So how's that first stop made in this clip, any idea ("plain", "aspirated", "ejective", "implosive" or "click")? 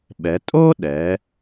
implosive